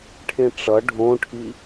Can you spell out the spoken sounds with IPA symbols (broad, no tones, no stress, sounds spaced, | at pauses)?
ʈʰ ẽ ʈ͡ʂ ʌ ɖʱ õ ʈʰ i